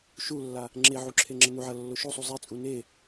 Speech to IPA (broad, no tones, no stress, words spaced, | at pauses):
ʃulːa | ŋ͡ǁeʕu ǁʰeŋ͡ǁənuʕɐ lːoʃosˤu zˤet͡sʼu ne